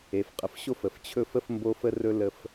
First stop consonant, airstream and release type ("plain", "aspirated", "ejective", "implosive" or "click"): ejective